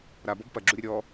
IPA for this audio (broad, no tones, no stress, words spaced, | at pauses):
ɾabɔb pɐɡ͡ǁuɾʲɐ ɾʲɔ